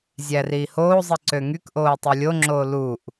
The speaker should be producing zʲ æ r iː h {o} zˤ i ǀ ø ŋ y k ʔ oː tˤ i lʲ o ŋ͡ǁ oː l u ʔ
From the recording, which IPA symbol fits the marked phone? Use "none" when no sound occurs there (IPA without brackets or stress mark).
oː